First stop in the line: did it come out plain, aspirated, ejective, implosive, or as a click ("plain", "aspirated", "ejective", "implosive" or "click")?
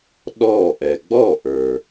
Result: implosive